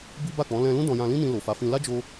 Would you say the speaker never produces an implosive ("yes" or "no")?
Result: yes